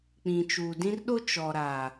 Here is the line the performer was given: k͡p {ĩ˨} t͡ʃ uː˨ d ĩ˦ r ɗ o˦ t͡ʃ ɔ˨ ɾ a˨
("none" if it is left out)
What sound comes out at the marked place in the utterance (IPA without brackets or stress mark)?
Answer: ĩ˨